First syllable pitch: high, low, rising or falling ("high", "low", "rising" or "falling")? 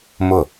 falling